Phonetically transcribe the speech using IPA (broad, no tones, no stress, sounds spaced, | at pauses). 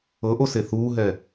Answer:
ɤ ʔ o s e θ uː ɦ ɛ